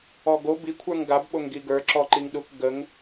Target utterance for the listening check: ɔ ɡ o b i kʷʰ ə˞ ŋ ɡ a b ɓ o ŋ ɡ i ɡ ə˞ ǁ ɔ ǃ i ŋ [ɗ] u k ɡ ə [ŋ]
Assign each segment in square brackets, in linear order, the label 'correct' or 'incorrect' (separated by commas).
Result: correct, correct